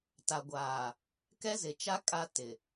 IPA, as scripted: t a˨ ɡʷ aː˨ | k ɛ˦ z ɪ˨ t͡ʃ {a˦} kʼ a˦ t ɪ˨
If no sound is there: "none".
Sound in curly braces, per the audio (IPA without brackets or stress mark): a˦